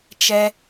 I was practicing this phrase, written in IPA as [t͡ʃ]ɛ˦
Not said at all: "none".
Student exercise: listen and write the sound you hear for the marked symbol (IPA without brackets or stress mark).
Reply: t͡ʃ